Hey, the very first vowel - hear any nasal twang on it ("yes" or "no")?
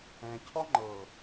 yes